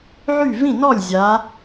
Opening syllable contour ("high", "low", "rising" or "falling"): falling